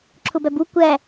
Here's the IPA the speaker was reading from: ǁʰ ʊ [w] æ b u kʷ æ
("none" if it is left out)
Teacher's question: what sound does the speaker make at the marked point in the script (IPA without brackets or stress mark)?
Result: b